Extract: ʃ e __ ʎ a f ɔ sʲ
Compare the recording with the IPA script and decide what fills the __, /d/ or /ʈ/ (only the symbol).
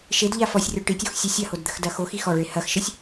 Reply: d